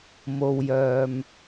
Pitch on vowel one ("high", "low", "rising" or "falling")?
low